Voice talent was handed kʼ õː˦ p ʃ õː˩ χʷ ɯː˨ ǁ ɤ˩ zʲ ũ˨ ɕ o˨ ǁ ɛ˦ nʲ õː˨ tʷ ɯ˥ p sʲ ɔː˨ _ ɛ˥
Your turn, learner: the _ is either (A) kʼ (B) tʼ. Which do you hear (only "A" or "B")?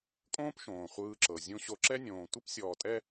B